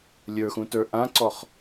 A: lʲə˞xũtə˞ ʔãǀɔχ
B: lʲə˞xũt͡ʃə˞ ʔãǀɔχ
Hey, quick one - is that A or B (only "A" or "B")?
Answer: A